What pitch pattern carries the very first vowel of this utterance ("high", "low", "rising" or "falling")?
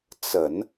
low